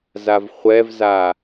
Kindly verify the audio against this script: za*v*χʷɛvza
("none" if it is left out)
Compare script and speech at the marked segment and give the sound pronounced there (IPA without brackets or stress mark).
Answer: v